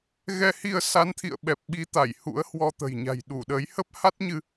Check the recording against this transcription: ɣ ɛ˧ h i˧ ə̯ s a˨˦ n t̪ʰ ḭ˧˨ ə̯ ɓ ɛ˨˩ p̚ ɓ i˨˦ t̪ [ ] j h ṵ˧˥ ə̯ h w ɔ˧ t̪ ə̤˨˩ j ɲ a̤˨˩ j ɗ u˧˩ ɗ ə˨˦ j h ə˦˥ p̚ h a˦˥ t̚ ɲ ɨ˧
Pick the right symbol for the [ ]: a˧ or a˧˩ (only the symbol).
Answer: a˧˩